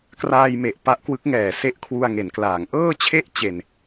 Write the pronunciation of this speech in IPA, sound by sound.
k r aː˧ j m e˨˩ ʔ p a˦˥ ʔ k w ɯ˦˥ k̚ ŋ ɛː˨˩ s e˦˥ ʔ kʰ w u˧ a̯ ŋ e˩˦ n k l aː˩˦ ŋ ʔ ɤː˥˩ t͡ɕʰ e˥˩ ʔ t͡ɕ e˧ n

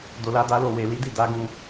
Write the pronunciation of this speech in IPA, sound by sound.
d o˧ l a˦ d a˦ l o˦˨ w e˨ l i˨˦ d i˦˨ d a˨˦ ɡ ũ˧

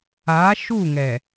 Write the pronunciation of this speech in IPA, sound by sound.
a˨˦ ʃ u˦˨ ŋ ɛ˨

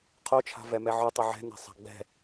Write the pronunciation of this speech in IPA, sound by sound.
qʰ o t͡ʃʰ a̤ v ɛ m ɛ ʕ ɵ tˤ ɵ ʕ ɛ̤ n ɛ̤ sˤ a̤ ɡ͡b ɛ̤

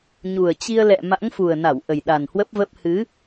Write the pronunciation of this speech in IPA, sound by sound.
ɲ u˨˩ ə̯ t͡ɕ i˧ ə̯ l ɛ̰˧˨ m a̰˧˥ ŋ f u˨˩ ə̯ n a˧˩ w ʔ ə˨˩ j ɗ a˨˩ n h w ə˦˥ p̚ v ə˦˥ p̚ h ɨ˨˦

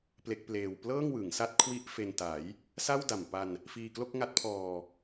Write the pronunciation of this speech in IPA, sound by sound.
p l e˦˥ k̚ p l eː˧ w p l ɤː˥˩ ŋ w ɯ˩˦ ŋ s a˦˥ t̚ kʰ w i˦˥ ʔ f e˧ n t a˩˦ j | s a˥˩ w d a˨˩ m p a˧ n | f iː˧ k l o˥˩ k̚ ŋ a˦˥ t̚ pʰ ɔː˧

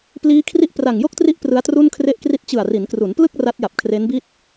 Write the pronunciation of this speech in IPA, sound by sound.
p l iː˦˥ kʰ r i˦˥ ʔ p r a˨˩ ŋ j o˥˩ k̚ t r i˦˥ ʔ p r ɯ˦˥ a̯ t r u˥˩ n kʰ r e˥˩ ʔ k r i˥˩ t̚ t͡ɕ ɯ˨˩ a̯ r i˩˦ n k r u˩˦ n p l ɯ˥˩ k̚ r a˦˥ t̚ j a˨˩ p̚ kʰ r e˦˥ n b i˥˩ t̚

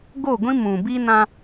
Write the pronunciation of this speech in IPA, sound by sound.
ɡ o˦˨ ɡʷ ĩ˦ m ũ˨ b i˦ n ã˦

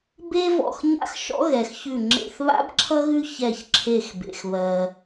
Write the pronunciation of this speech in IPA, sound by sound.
b e˥ v ɔ̰˧˩ x ɲ a̰˥ x ʃ ɔ̰˥ ɣ ɛ˩ x ç ʉ˧˩ ŋ͡ǁ ḛ˧˩ θ β a̰˥ b ǁʰ ʌ˥ ɣ ʉ˥ ç ɛ˧˩ ç ǁʰ e˧˩ x b ḛ˩ x β ɜ˩

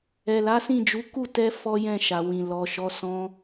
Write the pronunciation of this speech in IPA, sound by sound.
ɛ˨ l a˨˦ s ĩ˦˨ d͡ʒ u˨˦ k u˦˨ t ɛ˧ f ɔ˦ j ɛ̃˦˨ ʃ a˨ w ĩ˨ l ɔ˨ ʃ ɔ˨˦ s ɔ̃˦

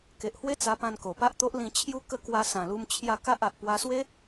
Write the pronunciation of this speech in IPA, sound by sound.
k e˨ ʔ h w e˦ t͡s a˧ p ã˧ n k o˨˩ p a˦ ʔ t̪ o˦ ʔ l ĩ˧ t͡ɕʰ j u˦ k ə˥˧ k w a˧ s ã˨˩ l u˧ m t͡ɕʰ j a˧ k a˦ ʔ a˨ ʔ p w a˧ s w e˦

